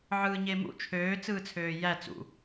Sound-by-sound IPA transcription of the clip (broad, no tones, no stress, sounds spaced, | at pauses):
ʕ ɯː ɲ e m ṵ t͡ʃʰ øː t͡s ɯː t͡sʰ øː j æ t͡s ṵ